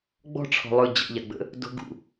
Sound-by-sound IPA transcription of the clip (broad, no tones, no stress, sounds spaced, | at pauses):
ɡ͡b ɔ̤ ʈ͡ʂʰ ɔ̤ lˠ ɵ d͡ʑ ə̰ ʎ a ɡ͡b ə̰ | d o̤ ɡ ṵ